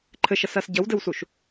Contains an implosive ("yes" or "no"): no